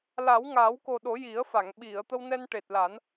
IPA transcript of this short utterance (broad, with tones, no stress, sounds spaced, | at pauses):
l a˨˩˦ w ŋ a˨˩˦ w k o˨˩ ɗ o˨˩˦ j i˨˩˦ ə̯ f a˨˩˨ ŋ ɓ i˨˩˨ ə̯ t̪ ə˧ w n ɛ˧ n ʈ e˨˩ t̚ l a˨˩˦ n